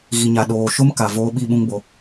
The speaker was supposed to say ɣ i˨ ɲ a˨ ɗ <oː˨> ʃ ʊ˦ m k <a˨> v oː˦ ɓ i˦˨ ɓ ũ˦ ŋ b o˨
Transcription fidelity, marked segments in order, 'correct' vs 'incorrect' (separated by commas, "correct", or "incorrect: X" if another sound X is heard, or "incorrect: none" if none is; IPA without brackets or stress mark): correct, correct